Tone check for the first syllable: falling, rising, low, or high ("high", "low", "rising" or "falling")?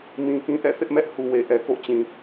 low